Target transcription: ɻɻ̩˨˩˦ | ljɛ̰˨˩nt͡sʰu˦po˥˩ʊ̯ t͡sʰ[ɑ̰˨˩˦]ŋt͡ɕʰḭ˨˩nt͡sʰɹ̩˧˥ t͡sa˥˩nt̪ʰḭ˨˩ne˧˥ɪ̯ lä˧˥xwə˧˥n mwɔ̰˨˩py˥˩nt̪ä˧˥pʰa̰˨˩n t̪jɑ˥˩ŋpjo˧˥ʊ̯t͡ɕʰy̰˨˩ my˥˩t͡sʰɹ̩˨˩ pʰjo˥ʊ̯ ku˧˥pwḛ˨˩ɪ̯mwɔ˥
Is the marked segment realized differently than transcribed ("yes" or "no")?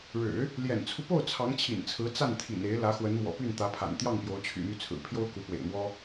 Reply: yes